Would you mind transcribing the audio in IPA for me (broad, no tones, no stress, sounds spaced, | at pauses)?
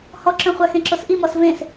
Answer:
h ɔ ǁ œ̃ χʷ a x ẽ ǁ o s ʔ i m ɔ s v ẽ s